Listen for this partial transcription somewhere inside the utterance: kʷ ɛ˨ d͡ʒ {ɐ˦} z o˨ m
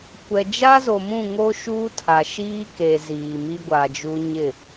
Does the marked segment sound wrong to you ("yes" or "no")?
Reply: yes